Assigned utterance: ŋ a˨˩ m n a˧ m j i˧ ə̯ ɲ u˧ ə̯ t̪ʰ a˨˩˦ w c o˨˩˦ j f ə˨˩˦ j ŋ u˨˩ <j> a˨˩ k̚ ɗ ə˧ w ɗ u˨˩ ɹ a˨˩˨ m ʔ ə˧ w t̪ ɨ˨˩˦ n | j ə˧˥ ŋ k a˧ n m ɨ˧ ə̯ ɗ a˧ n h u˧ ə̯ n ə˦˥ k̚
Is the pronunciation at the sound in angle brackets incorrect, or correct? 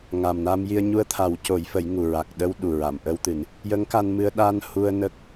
incorrect